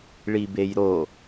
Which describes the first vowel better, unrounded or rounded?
unrounded